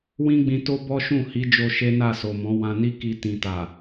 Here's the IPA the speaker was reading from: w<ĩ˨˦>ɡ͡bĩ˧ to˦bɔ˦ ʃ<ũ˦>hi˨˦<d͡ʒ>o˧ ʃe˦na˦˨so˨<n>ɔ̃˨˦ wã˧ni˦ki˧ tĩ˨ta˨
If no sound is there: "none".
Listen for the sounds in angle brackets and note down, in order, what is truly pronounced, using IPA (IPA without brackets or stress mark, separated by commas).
ĩ˦, ũ˦˨, d͡ʒ, m